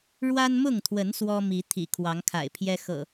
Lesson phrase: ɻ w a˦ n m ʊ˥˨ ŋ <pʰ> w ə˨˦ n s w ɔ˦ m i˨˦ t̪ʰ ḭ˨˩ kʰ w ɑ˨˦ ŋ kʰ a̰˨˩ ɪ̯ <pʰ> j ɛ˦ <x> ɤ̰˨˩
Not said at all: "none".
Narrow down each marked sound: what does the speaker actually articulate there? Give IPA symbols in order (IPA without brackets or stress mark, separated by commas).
t̪ʰ, pʰ, x